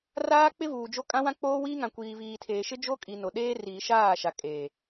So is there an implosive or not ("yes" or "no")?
yes